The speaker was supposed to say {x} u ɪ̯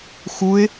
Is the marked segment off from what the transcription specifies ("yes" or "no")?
no